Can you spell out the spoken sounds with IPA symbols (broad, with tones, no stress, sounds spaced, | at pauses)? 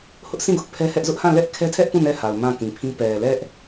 h ʊ˦ ʔ s ĩ˦˨ ɡ ʊ˦ ʔ pʰ ɛ˦ h ɛ˦ ʔ z ʊ˦ ʔ h ã˦˨ l ɛ˦ ʔ kʰ ɛ˦ tʰ ɛ˦ ʔ p ũ˦˨ n ɛ˦˨ h a˨ ʊ̯ m ã˦˨ t ĩ˨ pʰ ĩ˦ p ɛ˨ l ɛ˦ ʔ